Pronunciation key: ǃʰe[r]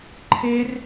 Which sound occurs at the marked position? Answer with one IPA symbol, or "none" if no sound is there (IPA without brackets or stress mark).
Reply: r